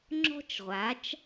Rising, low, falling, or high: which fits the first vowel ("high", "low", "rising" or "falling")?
high